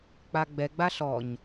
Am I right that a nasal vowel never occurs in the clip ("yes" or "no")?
yes